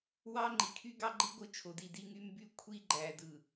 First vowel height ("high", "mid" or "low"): low